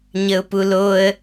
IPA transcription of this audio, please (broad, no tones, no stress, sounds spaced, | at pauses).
ɲ ə ʊ̯ p u l o ə̯